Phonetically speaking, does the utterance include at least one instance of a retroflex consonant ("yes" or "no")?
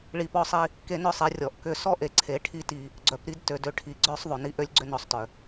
yes